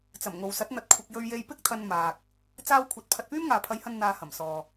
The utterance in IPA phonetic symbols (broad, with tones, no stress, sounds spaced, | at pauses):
t͡s ɐ˨˩ m ŋ o˨ w s ɐ˨˥ t̚ n̪ ɐ˧ t̚ kʷʰ ɪ˧ k̚ j ɵ˧ ɥ j e˧ j p ɪ˥ k̚ t̪ʰ ɐ˧ n m aː˨ k̚ | t͡s aː˧ w kʷʰ ɐ˨ t̚ pʰ ɐ˧ t̚ p yː˥ m ŋ aː˨ pʰ ɐ˨˧ j h ɐ˧ n n̪ aː˧ h ɐ˨˩ m s ɔː˨